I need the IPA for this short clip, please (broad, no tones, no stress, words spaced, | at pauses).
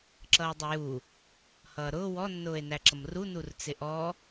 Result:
ǁʌːdˤəju | hʌːɾʊː wɔ nːʊːe̯næǁʌmru nurt͡sɪʔɔ